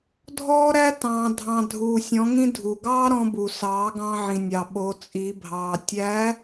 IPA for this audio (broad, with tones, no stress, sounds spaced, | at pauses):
dʱ ɔː˥ ɾ æ˥ t ɑ̃ː˧ dʱ ɑ̃˧ dʱ uː˧ sʲ ɔ̃˧˥ ŋ ĩ˥ dʱ u˩ ɡ ɑː˥ ɾ ɔ̃˧ b u˩ s ɑː˩˧ ɡ ɑ̃˧ ʕ ĩ˩ nʲ ɑ˩ ɓ o˩˧ t͡sʼ i˩˧ bʱ ɑː˩ tʲ æ˧˥